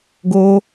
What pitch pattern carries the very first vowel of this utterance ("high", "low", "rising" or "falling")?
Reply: high